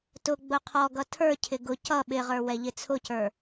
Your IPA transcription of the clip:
tʊ ɡ͡bʊqʰɔɡʌ tʰə˞cʰɪ ɡʊ cʌ ɓɪʁə˞ wɛʎɪt͡sʰʊcə˞

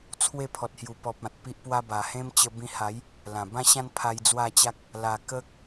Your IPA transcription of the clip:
t͡sʰwe˥˧pʰɔ˨t̚hju˨˩pɔ˨p̚ ã˨t̚pi˦ʔpwa˦ ba˨˩hẽ˦m t͡ɕə˧bĩ˧ha˨˦j | lã˨˩bã˦ɕã˦n pʰa˧jd͡zwa˥˧t͡ɕa˦k̚ | la˨˩ kə˦k̚

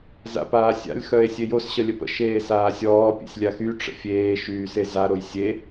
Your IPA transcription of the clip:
za̰paːsʲa̰lʲ xœe̯sʲejos ɕəlʲəpə̰ ʃeːsaːsʲɔː pʲḛsʲlʲaxy ʈ͡ʂə̰fʲeː ʃyːseza ɾojsʲe

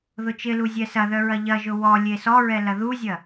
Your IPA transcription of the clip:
ðʊt͡ʃɪlu zʲɛsɐðœ ɹɐʎɐʒʊ wɔ lʲesɔɹɛ lɐðuzʲɐ

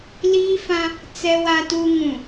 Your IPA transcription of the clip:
liː˦fã˦ | t͡sɛ˦wa˦tu˦ ŋũ˨

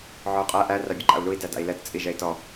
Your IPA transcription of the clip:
ʕɔu̯qʼæ ʔæ rabʲɘǃa̰u̯lui̯ dæda̰i̯lɛt t͡sʼiʒɛi̯tɔ

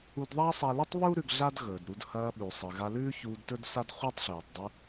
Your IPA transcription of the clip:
u˧dðˤa˥sˤa˧lɨ˥tˤ βu˥ ɾʉ˧ɡɮa˥dɣɵː˩dɾu˧d hɐː˧ɓʉ˩ sˤɨ˩ɣa˧lʉː˥çuː˧d tɵ˥dsa˥dχʷɨː˥tˤɬʉː˩tˤ dˤʉ˧

